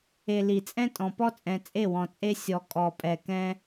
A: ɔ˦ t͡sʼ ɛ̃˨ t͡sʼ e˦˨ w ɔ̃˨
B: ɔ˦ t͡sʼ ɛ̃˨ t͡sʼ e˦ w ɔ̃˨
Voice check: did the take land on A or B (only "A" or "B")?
A